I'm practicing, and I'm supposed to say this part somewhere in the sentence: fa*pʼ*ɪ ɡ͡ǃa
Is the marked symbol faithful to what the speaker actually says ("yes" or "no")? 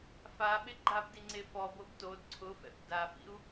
no